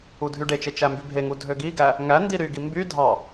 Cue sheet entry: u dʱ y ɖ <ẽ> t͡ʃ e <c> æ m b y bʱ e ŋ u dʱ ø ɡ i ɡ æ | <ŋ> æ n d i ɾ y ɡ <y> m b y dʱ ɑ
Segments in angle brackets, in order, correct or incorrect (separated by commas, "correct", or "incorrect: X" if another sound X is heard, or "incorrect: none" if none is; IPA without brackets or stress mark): incorrect: e, incorrect: t͡ʃ, correct, incorrect: i